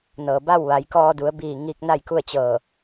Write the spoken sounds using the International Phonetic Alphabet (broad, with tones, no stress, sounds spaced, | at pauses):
n ɤː˩ b a˥˨ w ʋ a˩˧ j k ɔː˧ d u˩˧ ə̯ b iː˧˩ ŋ iː˧ k̚ n a˥˨ j k u˥˨ ə̯ t͡ɕ ɤː˧˩